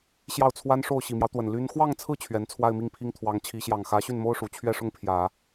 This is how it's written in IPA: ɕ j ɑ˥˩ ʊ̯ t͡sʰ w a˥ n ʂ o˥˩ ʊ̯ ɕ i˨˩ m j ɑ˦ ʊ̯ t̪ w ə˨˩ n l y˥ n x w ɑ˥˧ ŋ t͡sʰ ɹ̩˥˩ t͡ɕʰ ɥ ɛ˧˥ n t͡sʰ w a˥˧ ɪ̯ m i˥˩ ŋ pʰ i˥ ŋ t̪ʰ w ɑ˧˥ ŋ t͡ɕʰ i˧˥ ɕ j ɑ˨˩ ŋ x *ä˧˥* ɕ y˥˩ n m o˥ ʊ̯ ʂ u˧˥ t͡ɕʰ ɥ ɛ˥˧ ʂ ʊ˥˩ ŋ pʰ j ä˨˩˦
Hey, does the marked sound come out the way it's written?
yes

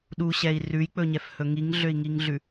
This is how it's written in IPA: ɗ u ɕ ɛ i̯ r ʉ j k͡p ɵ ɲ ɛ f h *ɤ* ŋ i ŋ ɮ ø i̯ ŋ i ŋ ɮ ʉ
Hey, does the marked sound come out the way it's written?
no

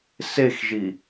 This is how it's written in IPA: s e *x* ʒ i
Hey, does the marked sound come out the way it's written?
yes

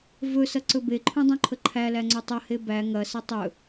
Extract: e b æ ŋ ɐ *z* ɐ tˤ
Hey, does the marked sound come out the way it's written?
no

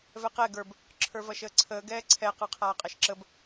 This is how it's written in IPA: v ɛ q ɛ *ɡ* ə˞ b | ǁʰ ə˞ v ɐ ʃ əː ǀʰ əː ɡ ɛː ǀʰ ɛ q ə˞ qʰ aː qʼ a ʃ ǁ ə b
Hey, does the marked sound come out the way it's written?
yes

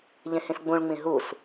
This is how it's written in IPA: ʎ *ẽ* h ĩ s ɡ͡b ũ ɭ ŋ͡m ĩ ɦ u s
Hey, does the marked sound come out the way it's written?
yes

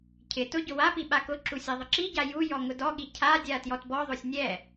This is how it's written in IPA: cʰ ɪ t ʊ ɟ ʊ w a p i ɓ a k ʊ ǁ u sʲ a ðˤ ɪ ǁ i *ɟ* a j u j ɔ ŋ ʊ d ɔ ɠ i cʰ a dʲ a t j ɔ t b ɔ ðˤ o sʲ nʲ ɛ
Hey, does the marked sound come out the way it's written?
yes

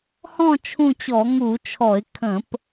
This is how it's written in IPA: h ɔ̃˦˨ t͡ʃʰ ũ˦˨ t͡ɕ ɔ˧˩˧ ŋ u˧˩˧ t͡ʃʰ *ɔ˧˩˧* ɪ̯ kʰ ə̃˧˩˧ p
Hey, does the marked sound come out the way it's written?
yes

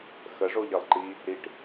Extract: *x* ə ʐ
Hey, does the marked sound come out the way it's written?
yes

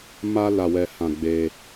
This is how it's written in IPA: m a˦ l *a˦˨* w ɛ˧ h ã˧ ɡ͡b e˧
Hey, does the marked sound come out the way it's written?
no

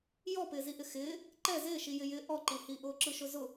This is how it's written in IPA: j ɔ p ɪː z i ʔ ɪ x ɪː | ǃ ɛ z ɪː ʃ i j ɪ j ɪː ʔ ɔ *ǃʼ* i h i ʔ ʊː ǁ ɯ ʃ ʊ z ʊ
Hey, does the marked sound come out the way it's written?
no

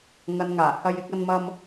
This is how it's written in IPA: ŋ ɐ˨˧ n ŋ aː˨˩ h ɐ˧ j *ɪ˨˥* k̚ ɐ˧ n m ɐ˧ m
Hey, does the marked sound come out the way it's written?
yes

